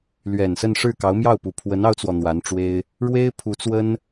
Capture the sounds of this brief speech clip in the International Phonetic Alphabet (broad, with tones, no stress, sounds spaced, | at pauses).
l ɥ ɛ˨˩ n s ə˥˧ n ʂ ɻ̩˥˩ k ɑ˧˥ ʊ̯ m j ɑ˥˩ ʊ̯ p u˨˩ pʰ w ə˧˥ n ɑ˥ ʊ̯ t͡s w ɔ˨ n̪ w a˧˥ n ʈ͡ʂ w e˥ ɪ̯ | ɻ w e˥ ɪ̯ pʰ u˧˥ t͡s w ə˥ n